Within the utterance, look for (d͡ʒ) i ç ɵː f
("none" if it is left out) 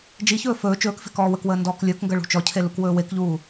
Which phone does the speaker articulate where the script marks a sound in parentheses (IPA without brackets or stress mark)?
d͡ʒ